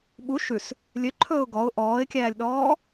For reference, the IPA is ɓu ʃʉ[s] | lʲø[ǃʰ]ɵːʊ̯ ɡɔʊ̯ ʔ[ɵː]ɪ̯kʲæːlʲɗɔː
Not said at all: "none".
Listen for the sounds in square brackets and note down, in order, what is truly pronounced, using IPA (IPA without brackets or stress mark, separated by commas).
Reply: s, ǃʰ, ɔː